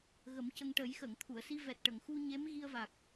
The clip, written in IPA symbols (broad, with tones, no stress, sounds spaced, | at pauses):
ɣ ə˨˩˦ m c ə˧ ŋ ʈ ə˨˩˦ j x ə˨˩˨ ŋ t̪ʰ u˨˩˨ ə̯ s i˧ v ɛ˨˩ t̚ ʈ ə˨˩˨ ŋ x u˧ ɲ e˧˥ m ɣ i˧ ə̯ v a˨˩ k̚